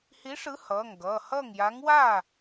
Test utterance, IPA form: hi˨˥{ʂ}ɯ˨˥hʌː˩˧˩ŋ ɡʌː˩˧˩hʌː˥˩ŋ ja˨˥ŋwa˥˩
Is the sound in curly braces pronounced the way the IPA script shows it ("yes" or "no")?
yes